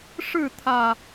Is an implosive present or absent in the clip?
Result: absent